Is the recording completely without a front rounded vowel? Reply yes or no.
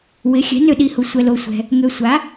no